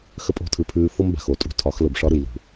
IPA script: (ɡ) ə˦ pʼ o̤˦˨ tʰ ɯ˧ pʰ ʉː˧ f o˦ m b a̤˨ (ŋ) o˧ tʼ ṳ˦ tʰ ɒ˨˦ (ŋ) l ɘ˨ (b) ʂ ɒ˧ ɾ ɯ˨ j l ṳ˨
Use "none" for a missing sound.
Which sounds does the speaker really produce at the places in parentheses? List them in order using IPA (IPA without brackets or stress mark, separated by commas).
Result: x, x, x, b